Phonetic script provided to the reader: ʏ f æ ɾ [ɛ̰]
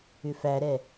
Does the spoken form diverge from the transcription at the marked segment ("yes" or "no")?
yes